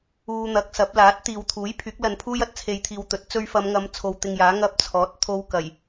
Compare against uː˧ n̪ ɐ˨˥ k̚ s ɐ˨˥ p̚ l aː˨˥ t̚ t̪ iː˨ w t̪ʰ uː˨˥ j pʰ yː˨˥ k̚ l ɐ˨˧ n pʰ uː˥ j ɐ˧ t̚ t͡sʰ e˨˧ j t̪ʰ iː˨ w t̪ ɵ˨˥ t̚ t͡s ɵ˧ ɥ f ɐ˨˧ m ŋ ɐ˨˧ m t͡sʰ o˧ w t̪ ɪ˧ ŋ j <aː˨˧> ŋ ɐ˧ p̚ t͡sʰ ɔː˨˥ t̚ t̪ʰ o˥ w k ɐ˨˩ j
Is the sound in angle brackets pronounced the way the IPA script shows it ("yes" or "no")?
no